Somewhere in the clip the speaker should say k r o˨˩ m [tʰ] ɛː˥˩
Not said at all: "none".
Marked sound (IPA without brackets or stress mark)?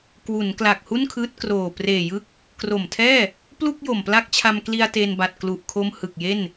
tʰ